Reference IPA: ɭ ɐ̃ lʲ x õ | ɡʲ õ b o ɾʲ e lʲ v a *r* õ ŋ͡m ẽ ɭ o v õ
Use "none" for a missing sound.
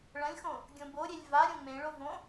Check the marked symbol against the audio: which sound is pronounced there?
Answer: ɾʲ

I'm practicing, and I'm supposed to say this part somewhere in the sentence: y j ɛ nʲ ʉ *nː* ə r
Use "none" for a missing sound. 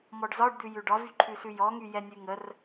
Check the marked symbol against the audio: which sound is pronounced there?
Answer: ŋ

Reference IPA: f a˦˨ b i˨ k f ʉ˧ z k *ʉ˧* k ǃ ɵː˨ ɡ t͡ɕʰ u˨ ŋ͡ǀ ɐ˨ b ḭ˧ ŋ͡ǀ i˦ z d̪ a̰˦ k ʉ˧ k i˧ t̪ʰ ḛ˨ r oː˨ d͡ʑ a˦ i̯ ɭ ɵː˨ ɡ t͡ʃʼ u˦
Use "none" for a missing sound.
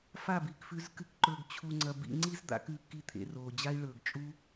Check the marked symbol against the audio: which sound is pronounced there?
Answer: ɨ˧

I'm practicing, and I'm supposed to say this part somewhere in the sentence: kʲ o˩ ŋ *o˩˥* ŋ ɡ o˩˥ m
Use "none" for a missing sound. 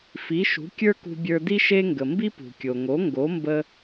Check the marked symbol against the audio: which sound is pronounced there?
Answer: o˩˥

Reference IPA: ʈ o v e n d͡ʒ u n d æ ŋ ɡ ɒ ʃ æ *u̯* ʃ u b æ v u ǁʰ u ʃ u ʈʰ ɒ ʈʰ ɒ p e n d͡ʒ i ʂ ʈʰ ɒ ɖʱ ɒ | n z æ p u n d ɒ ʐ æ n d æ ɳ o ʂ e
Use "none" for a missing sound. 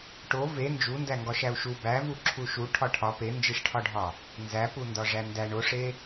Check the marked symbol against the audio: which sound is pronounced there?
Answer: u̯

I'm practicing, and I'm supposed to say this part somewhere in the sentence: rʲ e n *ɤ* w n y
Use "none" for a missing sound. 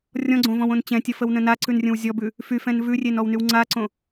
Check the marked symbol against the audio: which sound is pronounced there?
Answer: ɔ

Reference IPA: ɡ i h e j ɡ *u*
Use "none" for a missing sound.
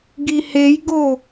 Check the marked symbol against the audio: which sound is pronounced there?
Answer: o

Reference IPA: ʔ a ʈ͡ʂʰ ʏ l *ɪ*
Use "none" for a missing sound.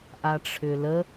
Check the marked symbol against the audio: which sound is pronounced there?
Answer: ə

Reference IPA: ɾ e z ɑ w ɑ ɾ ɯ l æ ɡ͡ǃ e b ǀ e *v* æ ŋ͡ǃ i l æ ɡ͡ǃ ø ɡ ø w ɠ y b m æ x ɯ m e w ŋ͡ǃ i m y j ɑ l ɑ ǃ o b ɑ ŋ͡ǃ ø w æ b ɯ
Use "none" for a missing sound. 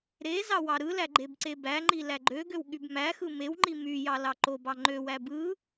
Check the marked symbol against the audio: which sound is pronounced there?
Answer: b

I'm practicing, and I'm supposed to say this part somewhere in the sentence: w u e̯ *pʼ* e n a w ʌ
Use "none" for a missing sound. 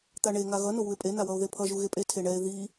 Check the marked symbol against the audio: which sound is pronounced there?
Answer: pʼ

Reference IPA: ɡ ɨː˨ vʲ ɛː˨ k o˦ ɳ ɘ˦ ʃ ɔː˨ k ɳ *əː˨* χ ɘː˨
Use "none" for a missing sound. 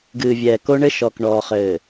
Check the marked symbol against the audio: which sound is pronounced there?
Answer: ɔː˨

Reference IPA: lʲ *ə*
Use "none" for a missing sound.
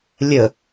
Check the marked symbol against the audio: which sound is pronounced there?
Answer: ə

